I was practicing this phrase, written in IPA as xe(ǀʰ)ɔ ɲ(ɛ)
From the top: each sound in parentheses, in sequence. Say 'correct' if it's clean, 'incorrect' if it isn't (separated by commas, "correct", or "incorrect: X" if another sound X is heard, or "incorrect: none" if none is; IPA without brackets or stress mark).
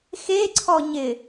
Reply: correct, incorrect: ɪ